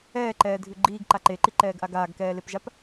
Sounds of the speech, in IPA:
ɛː ǃ ɛː dʱ ʉ ɡ͡ǃ iː ɡ ǃ a ǃ e ǃ i ǃ ɛː ɡ ʔ a ɡ aː ɡ k ɛː l e p ʒ a p

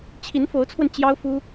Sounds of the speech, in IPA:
t͡ɕʰ i˧˥ n f o˧˥ ʊ̯ t͡sʰ w ə˧ n t͡ɕ j ɑ˥ ʊ̯ f u˥

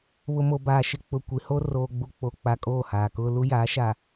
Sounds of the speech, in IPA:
β ʊ˨ m o˨ b aː˨ ʃ ɪ˨ k͡p ʊ˨ kʷ i˨ h o˦ r oː˨ ɡ͡b u˨ k͡p o˨ k͡p a˨ kʼ oː˦˨ h aː˨ k ʊ˦ l u˦ j aː˨˦ ʃ a˨

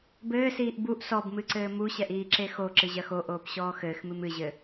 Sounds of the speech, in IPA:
b ɘː s iː ʔ b u ʔ s ɔ b m ɨ ǀ ɘː m u ɕ ɛ ʔ iː ǁ e x o ǁ ɨ ʑ ɐ x o ʔ oː p ɕ ɔː x ɘː x m ɨ m ɨ ʑ ɘ

